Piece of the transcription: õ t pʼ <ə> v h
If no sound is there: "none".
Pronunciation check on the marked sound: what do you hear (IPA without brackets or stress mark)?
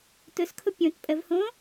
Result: ə